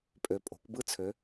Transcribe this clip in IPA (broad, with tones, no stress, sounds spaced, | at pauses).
pʼ ø˨ pʼ o̤˨˩˦ kʷ b ɯ˥˧ t͡sʰ ø˨˦